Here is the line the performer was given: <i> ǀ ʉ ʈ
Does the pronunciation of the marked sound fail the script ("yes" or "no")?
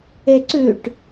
yes